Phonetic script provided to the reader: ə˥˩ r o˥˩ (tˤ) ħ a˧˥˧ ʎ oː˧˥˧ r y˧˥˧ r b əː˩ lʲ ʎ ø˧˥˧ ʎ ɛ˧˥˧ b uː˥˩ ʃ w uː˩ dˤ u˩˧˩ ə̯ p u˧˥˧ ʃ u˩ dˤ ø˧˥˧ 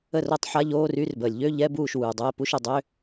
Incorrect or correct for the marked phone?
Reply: correct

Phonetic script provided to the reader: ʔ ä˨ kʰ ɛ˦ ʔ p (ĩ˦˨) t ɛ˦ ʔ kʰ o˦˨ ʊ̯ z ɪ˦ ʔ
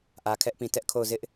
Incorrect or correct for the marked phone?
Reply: incorrect: ĩ˨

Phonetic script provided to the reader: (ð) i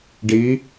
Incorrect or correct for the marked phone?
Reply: incorrect: ɖ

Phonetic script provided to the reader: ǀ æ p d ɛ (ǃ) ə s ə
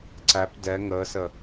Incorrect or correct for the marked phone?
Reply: incorrect: ŋ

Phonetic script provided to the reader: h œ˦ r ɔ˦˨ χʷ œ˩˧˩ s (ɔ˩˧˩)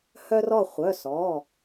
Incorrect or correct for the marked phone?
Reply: correct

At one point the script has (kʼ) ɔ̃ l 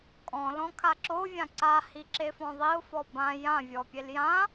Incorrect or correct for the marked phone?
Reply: correct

